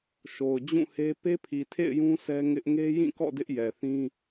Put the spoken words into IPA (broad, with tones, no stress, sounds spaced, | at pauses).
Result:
ʃ o˨ ʊ̯ d͡ʑ ũ˦˨ h e˦ p e˦ pʰ i˨ tʰ ḛ˦˨ ɪ̯ j ũ˦ sʰ ɛ˦ ŋ ɪ˦ ʔ ŋ e˦ j ĩ˦˨ k ɔ̰˦˨ d ɪ˦ ʔ j ɛ˨ θ ĩ˦